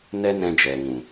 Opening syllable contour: high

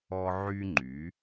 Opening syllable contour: high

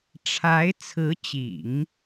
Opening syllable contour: rising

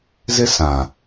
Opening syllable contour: high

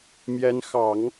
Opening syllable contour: rising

